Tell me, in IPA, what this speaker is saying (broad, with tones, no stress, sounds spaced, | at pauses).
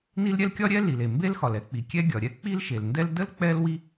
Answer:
n i˥ l ɾʲ ɛ˥ l kʲ ɒ˥ ɾʲ ɛ˥ l i˩ l e˩ m b e˥ l x ɒ˩ l ɛ˥ k͡p i˩ kʲ ɛ˥ ɡʲ ɒ˩ ɾʲ ɛ˥ k͡p i˥ l ʃ e˩ l n d ɛ˥ l d ə˥ l k͡p ɛ˥ l w i˥